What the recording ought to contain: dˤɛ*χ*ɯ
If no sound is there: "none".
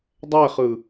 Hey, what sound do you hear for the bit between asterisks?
χ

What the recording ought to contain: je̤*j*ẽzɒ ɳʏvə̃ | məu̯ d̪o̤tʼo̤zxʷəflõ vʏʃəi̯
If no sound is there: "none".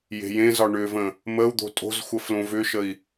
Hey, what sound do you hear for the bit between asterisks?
j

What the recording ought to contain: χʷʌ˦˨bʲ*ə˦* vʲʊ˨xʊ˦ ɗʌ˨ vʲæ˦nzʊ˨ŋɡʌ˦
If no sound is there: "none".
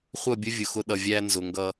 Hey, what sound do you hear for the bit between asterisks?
ə˦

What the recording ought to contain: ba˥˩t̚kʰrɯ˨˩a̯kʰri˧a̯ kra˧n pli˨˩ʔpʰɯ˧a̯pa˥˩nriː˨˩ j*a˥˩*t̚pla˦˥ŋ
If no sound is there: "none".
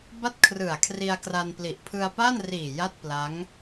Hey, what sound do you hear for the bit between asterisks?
a˥˩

